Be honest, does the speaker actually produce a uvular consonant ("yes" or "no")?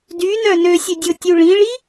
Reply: no